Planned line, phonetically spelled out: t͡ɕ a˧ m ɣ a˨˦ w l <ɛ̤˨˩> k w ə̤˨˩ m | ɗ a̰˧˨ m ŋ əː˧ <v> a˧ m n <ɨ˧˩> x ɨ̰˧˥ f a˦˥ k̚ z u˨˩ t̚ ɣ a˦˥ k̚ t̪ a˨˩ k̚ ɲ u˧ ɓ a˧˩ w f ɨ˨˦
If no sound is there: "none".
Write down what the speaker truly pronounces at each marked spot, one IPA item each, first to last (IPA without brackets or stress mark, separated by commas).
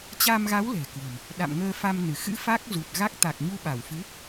ɛ̤˨˩, f, ɨ˧˩